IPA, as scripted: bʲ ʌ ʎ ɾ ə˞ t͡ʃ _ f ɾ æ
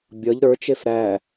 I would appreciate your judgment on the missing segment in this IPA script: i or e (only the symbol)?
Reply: e